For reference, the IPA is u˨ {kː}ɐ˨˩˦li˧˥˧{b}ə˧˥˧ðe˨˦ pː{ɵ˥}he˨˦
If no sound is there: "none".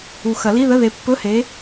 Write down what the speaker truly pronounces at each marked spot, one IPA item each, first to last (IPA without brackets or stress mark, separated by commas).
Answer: x, ð, ɵ˧˥˧